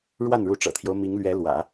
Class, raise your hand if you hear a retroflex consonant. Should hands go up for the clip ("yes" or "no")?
yes